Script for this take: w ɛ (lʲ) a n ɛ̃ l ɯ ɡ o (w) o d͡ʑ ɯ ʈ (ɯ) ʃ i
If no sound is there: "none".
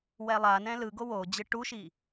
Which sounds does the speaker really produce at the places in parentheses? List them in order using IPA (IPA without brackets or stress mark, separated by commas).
lˠ, w, u